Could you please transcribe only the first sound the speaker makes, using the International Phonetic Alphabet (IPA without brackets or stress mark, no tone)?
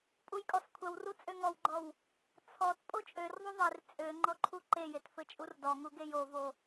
pʼ